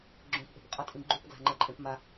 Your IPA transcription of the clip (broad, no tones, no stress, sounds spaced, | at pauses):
ɡ͡ǁ õ p ʔ e̤ p qʼ ʌ tʼ ĩ ɡ͡ǃ u p ɡ l a̤ ŋ͡ǃ ɛ ǃʼ ẽ p m a